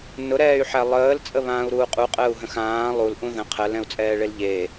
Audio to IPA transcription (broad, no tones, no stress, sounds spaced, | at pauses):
n ʊ ɾ ɛː y̯ ħ æ lˠ əː l t͡sʼ ə β ãː u̯ ɾ uː qʼ u qʼ əː u̯ ɦ ə̃ x ãː lˠ u l ʔ ũ ð ə̃ qʰ ɜ l ɛ̃ u̯ t͡sʼ ɛː ɭ e l ʎ e